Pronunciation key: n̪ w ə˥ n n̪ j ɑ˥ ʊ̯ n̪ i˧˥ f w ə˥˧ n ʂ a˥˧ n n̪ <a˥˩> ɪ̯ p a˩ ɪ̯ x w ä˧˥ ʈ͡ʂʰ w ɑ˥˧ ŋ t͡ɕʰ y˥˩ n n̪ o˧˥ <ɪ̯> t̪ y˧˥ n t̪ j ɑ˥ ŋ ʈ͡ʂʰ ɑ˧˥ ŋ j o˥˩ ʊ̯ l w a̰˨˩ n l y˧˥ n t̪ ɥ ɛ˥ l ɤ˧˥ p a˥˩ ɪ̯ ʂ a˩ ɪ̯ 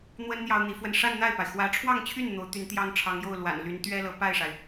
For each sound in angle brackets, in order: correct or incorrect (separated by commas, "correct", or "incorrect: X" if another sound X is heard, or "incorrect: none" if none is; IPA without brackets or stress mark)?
correct, incorrect: ʊ̯